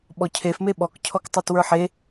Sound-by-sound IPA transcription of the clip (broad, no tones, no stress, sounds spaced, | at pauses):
ɓ ɔ cʰ e f m e ɓ ɔ k cʰ ɔ k tˤ o t w ə˞ ħ e